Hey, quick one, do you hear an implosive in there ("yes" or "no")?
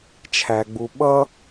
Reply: yes